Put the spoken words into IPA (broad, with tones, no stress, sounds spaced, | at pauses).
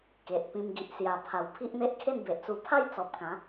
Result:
k e˨ ʔ p ĩ˧ m ɡ i˨ ʔ s j a˨˩ pʰ a˨˩ w pʰ i˦ ʔ n̪ e˦ ʔ kʰ e˥˧ n b e˨ ʔ t͡s u˧ pʰ a˥˧ j t͡s ɔ˨ p̚ k ã˨˦